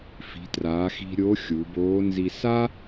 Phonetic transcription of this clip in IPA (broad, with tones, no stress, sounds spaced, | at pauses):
f i̤˩˧ t r aː˩˧ x i̤˧ ɾʲ o˧˥ xʲ u˩˧ b oː˧˥ n z i˧ s a˥